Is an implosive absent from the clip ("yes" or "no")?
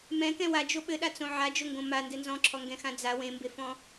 no